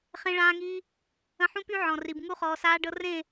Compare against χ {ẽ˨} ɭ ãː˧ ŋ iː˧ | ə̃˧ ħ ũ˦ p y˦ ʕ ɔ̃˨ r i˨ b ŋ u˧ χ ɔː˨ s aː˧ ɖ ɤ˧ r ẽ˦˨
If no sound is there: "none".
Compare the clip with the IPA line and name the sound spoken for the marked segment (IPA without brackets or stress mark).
ẽ˧